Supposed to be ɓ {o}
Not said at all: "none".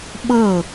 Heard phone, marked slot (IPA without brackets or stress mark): ɤ